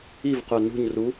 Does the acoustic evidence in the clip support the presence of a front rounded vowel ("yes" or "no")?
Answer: yes